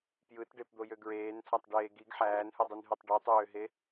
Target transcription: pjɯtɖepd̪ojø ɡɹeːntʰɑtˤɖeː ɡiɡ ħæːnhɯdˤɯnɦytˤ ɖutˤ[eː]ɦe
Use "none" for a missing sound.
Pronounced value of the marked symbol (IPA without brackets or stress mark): øː